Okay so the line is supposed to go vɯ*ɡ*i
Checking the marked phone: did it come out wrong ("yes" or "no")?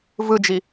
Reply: yes